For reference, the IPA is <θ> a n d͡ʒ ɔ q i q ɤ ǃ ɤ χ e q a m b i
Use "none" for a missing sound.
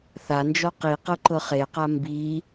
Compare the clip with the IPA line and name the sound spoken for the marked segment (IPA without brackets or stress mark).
θ